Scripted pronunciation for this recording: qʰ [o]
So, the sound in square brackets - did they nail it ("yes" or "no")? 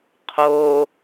no